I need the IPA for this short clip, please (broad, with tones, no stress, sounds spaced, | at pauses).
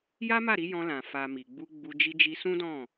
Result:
j a˦ m a˦˨ ɾ i˧ j ɔ̃˧ l ã˨ f a˨ m i˨ ɡ͡b u˧ ɡ͡b u˧ d͡ʒ i˧ d͡ʒ i˧ s ũ˦ d ɔ̃˦˨